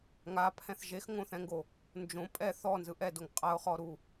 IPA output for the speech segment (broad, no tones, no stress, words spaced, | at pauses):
ŋapʰɛ̃θ ʒexŋõθɛ̃ŋɡo | nd͡ʒõ pʼɛ θɔnzɯ ʔɛdoŋ qʼaʊ̯χɔɾu